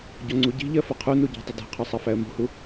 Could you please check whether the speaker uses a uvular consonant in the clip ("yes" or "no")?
yes